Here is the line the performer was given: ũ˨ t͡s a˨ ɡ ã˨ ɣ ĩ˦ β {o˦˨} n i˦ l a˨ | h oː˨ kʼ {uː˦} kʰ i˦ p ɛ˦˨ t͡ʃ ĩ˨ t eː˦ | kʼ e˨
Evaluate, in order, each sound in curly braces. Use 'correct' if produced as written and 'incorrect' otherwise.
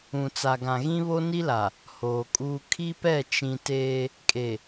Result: incorrect: o˦, correct

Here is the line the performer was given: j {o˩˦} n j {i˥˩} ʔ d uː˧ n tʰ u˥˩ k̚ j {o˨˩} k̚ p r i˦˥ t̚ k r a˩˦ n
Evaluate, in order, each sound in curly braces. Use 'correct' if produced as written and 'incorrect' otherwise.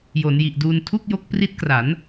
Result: correct, incorrect: i˨˩, incorrect: o˦˥

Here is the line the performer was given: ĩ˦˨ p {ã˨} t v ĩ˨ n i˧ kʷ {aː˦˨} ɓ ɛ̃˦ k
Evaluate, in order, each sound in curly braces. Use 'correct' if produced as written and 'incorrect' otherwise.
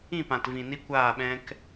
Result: correct, correct

